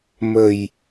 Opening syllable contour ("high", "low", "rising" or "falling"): low